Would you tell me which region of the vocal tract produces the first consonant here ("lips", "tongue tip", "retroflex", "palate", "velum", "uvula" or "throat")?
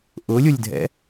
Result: throat